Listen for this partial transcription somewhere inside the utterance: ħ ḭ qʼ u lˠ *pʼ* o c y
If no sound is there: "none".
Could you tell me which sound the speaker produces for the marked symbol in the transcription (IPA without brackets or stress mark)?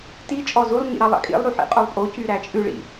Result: pʼ